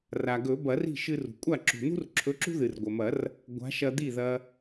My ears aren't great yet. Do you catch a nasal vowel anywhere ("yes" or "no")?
no